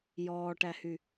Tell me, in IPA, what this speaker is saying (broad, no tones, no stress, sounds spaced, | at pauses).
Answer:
j ɔː ʈ æ h y